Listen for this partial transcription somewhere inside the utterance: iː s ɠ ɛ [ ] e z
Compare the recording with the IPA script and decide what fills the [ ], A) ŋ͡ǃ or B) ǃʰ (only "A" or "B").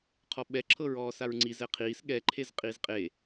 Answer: B